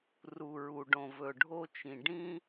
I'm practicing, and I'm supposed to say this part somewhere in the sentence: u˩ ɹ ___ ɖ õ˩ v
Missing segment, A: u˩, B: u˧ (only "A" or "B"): A